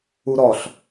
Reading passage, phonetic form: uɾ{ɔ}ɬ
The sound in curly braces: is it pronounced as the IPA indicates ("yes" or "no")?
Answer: yes